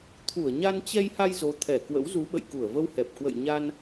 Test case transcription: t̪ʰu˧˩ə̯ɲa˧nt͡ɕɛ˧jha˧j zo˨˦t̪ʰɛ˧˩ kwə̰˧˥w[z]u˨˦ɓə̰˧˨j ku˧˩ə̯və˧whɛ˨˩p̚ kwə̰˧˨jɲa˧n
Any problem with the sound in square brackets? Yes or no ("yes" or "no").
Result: no